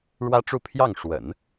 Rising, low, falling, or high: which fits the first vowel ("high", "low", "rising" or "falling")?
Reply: high